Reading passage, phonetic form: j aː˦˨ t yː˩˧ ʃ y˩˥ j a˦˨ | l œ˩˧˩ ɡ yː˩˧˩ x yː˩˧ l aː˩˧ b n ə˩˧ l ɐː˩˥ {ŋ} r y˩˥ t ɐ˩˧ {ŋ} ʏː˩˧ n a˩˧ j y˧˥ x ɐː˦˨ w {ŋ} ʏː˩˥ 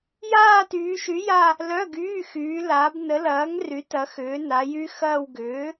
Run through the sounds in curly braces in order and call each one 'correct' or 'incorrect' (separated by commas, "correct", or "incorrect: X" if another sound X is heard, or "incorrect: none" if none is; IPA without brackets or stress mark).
correct, incorrect: x, incorrect: ɡ